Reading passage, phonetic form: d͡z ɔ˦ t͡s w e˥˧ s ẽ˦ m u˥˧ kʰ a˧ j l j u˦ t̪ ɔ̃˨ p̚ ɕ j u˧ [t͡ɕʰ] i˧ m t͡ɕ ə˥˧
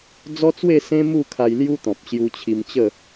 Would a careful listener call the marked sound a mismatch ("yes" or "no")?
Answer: no